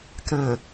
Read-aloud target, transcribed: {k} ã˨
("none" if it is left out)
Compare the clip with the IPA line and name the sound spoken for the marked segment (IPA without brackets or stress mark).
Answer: k